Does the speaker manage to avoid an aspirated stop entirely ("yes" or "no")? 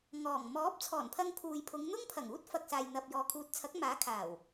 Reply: no